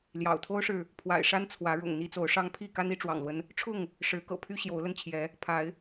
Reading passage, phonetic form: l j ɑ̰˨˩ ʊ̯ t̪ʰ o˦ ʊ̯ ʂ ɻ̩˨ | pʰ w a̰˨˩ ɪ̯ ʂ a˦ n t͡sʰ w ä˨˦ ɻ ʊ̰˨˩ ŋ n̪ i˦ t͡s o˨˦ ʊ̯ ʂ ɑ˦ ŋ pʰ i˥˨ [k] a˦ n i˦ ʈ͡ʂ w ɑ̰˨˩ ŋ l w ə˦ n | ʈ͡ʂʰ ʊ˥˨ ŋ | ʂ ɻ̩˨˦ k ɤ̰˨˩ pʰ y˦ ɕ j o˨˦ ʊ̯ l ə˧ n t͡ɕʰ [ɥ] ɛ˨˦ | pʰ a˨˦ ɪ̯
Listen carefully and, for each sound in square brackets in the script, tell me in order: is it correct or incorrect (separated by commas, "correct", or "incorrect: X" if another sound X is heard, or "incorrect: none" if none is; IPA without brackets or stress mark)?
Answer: correct, incorrect: j